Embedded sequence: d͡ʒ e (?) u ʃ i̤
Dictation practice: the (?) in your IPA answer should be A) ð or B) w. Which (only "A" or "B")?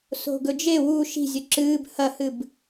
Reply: B